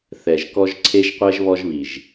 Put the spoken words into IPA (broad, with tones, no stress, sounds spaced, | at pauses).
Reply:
θ ɛ˨ ʒ k ɔ˦ ʒ ǀʰ e˦ ʒ qʷ ɛ˦ ʒ β ɔ˦ ʒ β i˨ ʒ